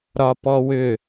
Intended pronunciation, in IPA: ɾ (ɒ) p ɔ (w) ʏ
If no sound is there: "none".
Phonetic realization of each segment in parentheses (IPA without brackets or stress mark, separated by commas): ɒ, w